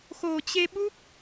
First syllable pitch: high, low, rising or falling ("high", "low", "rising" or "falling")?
low